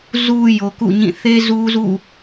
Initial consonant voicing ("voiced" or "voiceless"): voiced